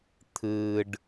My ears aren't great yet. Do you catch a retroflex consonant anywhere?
yes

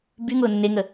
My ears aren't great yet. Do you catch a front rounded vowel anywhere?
yes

